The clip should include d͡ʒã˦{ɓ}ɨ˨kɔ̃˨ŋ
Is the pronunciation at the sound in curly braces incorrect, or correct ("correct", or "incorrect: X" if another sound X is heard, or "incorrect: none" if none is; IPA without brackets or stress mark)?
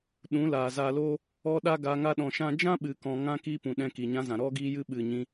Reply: correct